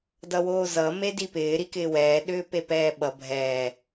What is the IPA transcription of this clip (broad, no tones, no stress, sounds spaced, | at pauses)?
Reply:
d ʌ w oː z ʌ m e d i p ɪː ɾ i k ɪː w ɛː ɗ ʏː p e p ɛː ɓ ʌ bʱ ɛː